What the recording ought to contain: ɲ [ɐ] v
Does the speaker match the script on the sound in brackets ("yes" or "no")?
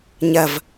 yes